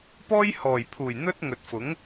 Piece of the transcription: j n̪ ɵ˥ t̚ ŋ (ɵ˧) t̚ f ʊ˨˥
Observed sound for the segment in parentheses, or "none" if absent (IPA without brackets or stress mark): ɵ˨